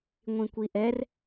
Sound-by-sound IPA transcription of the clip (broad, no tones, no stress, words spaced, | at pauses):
ŋʷĩkʷiʔɛr